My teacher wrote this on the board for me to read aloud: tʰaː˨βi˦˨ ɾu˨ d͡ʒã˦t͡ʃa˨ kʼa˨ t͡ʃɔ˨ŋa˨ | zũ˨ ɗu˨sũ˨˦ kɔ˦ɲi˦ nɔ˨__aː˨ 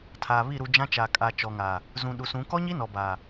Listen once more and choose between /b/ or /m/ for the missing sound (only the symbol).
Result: b